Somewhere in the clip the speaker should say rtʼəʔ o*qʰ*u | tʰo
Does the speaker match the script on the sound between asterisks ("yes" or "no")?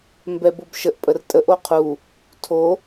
yes